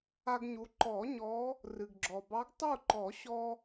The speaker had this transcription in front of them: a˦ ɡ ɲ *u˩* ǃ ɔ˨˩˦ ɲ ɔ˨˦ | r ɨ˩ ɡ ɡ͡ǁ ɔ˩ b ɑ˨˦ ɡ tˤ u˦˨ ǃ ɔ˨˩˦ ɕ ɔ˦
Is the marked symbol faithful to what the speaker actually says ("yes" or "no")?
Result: no